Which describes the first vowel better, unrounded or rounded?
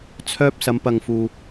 rounded